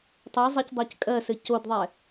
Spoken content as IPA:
tˤɜzˤɛcdˤɜc kʼɜsɘ codðˤɛ

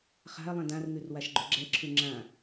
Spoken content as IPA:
χa̤ɐ̯ lˠɛ̃dãrŋʉr waʃɡ͡ǃʉɡ͡ǁɛǁʰʉ ŋ͡ǁã

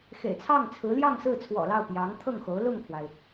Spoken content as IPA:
xḛ˨˩ɪ̯t͡sʰɑ˥˩ŋt͡sʰɹ̩˧˥ ljɑ˥˧ŋsɹ̩˥˩t͡sʰwɔ̰˨˩lɑ˥˩ʊ̯ pjɑ˧˥ŋt̪ʰɤ˥˩ŋxo˧˥ʊ̯ lʊ˥˩ŋkʰwa˩ɪ̯

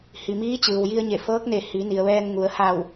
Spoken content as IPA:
hi˩miː˧˥ t͡ɕɯː˩wji˧ə̯ɲe˧˩ fɤː˧˥k̚ne˧˩ hi˩˧ ni˩ə̯ʋɛː˧nŋu˩˧ə̯ ha˧˩w

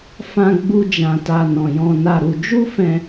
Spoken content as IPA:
fã˧ ɡ͡bu˦d͡ʒã˧ta˧ nɔ̃˧jɔ̃˦na˦ɾu˧ d͡ʒu˦fɛ̃˧

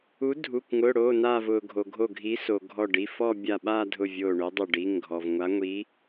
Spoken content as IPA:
u˨˥ dʱu˩˧˩kʷ ŋʊː˩˧˩ɽoː˩˧˩naː˧˩v ʊː˩ɡʱo˩ ɡʱo˧˩ɡʱi˨˥so˩ ɡʱɔ˧˩ɖi˩˧˩fɔ˥˧ bʲa˧˩ɓaː˥˧dʱʊ˧˩ vʲoː˧˩ɳʊː˨˥dˤo˧˩ ɖi˩˧˩ŋɡʱɔ˩v ŋʷa˨˥ŋʷi˨˥

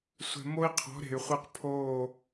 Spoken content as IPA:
sʷɛ̤˨ mo˦i̯qʰɔ̤˨˦ ɾe̤˨y̯χʷe˦q pʰoː˦˨

